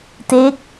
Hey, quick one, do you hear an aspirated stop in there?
no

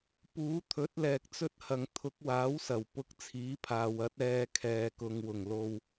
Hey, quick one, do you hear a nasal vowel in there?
no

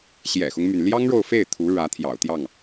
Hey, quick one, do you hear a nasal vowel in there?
no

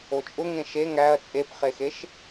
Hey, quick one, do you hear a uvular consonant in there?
yes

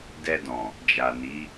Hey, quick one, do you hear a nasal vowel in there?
yes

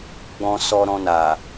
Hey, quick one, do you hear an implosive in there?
no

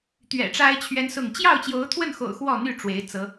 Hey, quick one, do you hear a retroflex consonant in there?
yes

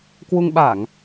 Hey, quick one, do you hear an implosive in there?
yes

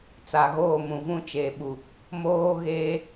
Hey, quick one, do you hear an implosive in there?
yes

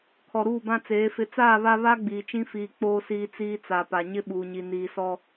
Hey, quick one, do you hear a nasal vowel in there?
yes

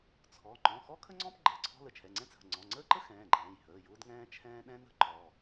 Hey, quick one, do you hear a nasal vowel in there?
yes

